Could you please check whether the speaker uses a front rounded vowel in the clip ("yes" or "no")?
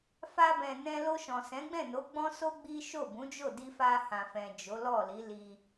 no